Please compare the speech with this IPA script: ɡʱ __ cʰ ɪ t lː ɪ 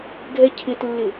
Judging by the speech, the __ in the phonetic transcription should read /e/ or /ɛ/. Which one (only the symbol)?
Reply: ɛ